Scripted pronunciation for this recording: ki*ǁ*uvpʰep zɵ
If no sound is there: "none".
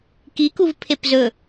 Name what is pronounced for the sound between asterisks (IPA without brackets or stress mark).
k